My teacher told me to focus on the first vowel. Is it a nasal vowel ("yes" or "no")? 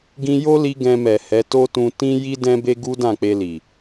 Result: yes